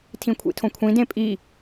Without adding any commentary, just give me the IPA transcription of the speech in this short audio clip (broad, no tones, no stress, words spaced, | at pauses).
tʰĩkʷʰḭtʰõkʷʰĩ dẽpʼi